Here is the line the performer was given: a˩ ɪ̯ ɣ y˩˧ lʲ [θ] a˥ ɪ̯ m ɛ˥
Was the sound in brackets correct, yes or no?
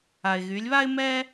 no